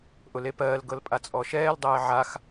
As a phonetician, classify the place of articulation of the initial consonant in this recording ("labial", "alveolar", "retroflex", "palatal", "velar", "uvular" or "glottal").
glottal